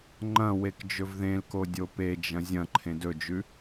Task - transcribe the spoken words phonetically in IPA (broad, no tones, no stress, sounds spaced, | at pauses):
ŋ͡ǃ ɐ̃ w e k d͡ʒ ɵ v ð ẽ l k o dʲ o p e d͡ʒ ɐ̃ zʲ ɐ̃ ǃʰ ẽ d ɵ d͡ʒ ʉ